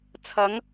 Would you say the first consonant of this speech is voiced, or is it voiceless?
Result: voiceless